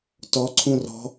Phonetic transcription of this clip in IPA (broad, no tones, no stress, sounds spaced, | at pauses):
t ɔ ǀʰ ũ r ɔ̤